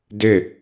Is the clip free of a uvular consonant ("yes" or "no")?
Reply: yes